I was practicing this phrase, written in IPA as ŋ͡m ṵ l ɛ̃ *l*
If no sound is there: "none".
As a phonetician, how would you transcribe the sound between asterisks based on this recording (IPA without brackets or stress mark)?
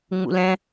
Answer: none